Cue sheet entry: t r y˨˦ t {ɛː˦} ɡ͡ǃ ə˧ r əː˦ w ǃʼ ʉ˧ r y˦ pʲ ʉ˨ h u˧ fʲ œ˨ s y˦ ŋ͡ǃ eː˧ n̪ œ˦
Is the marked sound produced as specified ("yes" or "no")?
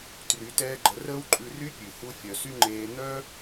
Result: yes